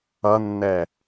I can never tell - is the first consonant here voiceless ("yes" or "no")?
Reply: no